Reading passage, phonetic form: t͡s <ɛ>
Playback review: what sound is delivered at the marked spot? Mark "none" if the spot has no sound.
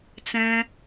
ɛ̃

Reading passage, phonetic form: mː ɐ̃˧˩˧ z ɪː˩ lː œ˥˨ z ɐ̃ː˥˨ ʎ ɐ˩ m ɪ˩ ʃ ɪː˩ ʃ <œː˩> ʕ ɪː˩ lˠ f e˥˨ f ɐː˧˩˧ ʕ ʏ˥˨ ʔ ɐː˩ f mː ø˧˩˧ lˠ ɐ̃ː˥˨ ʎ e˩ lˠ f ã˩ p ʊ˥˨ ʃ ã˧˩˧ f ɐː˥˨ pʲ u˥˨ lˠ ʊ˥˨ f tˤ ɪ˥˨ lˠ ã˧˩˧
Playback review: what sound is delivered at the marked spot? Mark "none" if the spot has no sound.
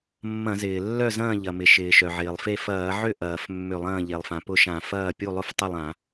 œ˩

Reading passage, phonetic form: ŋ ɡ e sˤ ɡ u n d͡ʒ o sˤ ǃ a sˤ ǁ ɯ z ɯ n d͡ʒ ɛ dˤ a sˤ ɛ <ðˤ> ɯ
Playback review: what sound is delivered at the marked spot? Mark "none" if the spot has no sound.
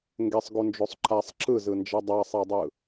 dˤ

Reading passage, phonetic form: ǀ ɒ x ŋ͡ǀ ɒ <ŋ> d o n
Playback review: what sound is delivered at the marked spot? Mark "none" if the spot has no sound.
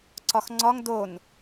ŋ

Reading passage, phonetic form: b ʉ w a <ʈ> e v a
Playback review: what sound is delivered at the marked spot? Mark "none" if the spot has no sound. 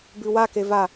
k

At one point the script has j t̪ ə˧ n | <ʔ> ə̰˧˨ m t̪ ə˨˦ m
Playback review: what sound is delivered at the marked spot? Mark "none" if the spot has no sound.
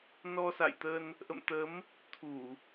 ʔ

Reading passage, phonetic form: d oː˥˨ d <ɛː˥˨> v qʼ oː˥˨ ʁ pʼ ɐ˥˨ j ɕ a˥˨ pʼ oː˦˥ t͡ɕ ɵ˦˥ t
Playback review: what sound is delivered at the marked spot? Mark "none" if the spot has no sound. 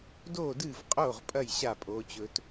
ɨː˥˨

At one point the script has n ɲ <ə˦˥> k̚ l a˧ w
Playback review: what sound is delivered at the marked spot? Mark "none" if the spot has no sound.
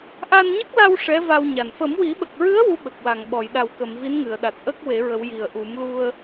ə˦˥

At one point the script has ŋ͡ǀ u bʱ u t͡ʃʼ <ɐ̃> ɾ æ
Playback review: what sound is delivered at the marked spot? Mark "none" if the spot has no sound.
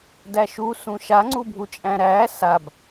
æ̃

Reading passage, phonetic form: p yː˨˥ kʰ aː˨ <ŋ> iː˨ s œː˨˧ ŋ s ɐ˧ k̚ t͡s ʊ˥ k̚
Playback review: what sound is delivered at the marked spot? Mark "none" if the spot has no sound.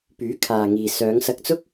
ŋ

